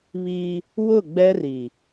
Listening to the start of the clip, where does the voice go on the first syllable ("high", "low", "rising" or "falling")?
high